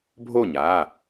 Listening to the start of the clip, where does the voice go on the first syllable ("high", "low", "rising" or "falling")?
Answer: falling